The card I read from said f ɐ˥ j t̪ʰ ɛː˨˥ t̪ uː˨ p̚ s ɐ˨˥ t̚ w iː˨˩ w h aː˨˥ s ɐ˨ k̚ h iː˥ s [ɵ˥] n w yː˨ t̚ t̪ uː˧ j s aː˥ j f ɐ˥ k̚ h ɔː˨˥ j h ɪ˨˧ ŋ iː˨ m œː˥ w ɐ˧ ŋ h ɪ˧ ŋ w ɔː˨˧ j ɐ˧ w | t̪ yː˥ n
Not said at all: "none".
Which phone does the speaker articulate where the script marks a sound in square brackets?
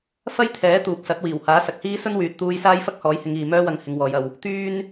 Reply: ɵ˥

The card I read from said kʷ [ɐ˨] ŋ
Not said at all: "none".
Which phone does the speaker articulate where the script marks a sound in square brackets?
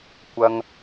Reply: ɐ˨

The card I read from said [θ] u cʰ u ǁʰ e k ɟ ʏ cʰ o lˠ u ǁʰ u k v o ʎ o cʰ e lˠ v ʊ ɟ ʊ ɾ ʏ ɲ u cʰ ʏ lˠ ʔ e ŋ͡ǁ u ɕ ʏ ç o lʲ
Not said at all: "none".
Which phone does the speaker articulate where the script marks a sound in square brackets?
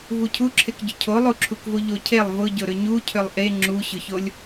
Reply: v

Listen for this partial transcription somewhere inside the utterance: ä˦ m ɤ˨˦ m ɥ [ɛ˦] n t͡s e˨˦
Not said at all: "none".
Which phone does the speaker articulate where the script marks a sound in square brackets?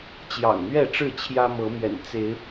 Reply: ɛ̰˨˩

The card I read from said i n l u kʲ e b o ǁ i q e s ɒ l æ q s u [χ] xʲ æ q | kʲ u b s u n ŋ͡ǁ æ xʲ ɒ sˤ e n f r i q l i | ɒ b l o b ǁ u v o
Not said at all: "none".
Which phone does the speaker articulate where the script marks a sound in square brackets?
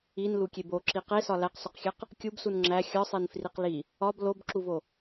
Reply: q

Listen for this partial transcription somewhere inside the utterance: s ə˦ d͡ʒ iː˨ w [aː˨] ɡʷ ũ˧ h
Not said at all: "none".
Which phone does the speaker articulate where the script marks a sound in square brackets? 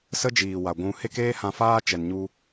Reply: a˨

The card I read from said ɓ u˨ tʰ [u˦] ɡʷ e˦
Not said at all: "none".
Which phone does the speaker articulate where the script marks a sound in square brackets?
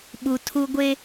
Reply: u˦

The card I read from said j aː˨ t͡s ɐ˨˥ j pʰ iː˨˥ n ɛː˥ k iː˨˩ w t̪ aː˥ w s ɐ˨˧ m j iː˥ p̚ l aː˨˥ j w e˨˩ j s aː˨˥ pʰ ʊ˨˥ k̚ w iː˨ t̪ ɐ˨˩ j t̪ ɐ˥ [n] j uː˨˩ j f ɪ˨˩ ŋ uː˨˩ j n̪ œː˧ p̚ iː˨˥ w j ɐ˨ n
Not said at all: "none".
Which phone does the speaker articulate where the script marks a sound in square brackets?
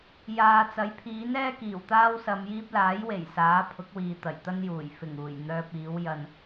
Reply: n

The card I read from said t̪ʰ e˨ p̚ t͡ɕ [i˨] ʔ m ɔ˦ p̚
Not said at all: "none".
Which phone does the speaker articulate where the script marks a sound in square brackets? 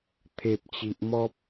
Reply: i˨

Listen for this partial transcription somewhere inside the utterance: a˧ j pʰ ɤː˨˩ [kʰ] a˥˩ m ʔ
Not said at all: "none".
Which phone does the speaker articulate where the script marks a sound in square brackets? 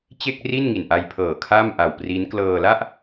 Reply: kʰ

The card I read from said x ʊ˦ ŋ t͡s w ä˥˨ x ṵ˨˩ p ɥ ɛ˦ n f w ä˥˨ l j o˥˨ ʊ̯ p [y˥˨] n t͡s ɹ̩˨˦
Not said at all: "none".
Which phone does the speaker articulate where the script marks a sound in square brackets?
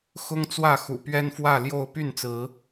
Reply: y˥˨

